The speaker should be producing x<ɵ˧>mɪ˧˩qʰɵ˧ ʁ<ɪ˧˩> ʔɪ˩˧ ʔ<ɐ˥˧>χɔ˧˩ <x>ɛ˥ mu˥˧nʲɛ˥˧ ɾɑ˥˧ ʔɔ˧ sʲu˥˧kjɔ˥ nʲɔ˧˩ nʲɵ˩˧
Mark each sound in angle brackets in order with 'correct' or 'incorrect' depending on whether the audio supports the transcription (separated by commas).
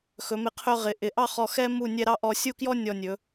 incorrect, incorrect, incorrect, correct